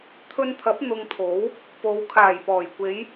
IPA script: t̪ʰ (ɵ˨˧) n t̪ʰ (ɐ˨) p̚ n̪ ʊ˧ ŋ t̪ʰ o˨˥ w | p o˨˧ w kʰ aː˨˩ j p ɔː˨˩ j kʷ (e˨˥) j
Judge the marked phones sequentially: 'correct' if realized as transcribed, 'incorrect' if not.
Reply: incorrect: ɵ˧, incorrect: ɐ˨˥, incorrect: e˨˧

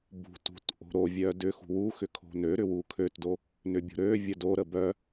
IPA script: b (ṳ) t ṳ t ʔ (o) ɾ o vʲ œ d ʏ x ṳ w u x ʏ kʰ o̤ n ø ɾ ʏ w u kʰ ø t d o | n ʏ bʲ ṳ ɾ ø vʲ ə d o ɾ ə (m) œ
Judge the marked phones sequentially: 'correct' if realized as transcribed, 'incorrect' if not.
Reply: correct, incorrect: o̤, incorrect: b

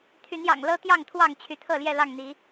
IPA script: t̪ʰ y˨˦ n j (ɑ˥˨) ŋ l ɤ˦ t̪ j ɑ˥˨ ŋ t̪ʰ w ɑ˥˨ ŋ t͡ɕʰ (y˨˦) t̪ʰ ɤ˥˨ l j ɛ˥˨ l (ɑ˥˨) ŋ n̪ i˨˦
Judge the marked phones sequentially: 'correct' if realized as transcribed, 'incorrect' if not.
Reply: incorrect: ɑ̰˨˩, correct, correct

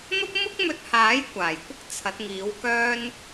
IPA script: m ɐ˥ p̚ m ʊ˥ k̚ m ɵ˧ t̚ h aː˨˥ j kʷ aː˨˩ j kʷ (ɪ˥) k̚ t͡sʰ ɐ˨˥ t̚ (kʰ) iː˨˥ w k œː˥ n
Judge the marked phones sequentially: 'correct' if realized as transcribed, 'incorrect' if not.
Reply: correct, incorrect: ŋ

